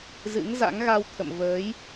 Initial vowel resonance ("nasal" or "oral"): oral